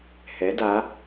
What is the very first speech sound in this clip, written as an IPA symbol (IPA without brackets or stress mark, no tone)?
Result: h